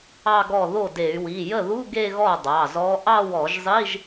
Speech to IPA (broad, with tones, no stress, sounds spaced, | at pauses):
ɑ˥˧ ɡ ɔ˥˩ ð o˥˩ d e˧˩˧ y̯ w i˩˧˩ j ə˥˩ ð u˧˥˧ ɡ e˥˧ ɣ ɔ˥˩ dˤ ɑ˩˧˩ z ɔ˧˥ ʔ ɑ˥˧ w ɔ˧˩˧ ʒ zˤ i˧˥˧ ʒ